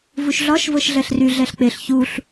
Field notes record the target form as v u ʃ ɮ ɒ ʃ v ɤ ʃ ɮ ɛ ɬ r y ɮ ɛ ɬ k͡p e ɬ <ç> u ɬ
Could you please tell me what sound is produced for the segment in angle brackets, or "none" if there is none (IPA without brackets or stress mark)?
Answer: ç